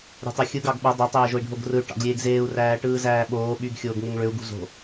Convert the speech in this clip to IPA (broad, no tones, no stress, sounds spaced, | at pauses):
ɾʲ o̤ tˤ ø xʲ ɯ ɡ ɑ ɡ ɓ o dˤ e tˤ eː ʒ o i̯ ɖʱ o ɡ r ɯ y̯ ʈ ɑ̰ ɡ lʲ eː ɡ z eː u̯ r æː ʈ ɯː z æː ɓ oː ɓ y ɡ xʲ oː ɡ ŋ e ŋ ɭ ø u̯ ɡ ṳ z o̤